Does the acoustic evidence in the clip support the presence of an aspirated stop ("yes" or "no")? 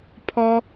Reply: yes